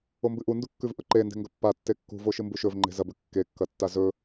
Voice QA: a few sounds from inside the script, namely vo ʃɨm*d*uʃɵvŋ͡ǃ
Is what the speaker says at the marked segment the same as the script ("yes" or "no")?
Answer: no